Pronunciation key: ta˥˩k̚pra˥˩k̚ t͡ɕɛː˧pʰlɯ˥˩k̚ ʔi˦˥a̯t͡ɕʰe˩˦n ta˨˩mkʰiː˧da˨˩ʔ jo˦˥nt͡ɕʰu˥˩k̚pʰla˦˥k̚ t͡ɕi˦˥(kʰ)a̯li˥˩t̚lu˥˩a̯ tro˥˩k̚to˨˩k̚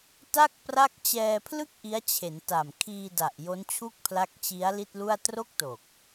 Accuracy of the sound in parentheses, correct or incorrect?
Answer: incorrect